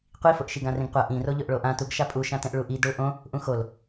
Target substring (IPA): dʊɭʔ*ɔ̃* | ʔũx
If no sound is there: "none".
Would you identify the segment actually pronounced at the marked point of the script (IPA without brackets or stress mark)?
õ